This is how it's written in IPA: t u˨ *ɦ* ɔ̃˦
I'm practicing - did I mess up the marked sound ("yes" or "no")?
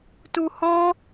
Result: yes